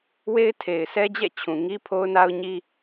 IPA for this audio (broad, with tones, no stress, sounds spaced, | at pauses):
w e˦ ɪ̯ tʰ e˨ ɪ̯ s ɛ˦ d͡ʑ ɛ̰˦˨ t͡ɕʰ ũ˨ ŋ i˦ pʰ o˦ ʊ̯ n a˦ ʊ̯ ɲ i˦